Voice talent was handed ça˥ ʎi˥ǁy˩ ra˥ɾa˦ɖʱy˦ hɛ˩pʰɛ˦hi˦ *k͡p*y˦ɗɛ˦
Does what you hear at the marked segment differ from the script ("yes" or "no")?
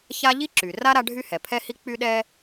no